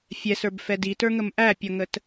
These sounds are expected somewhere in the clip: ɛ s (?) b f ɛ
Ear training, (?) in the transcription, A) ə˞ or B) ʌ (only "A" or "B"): A